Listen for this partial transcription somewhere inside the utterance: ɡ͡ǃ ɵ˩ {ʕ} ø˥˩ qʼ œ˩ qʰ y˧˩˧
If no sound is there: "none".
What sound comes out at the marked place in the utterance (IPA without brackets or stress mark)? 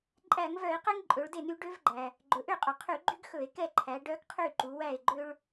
ʔ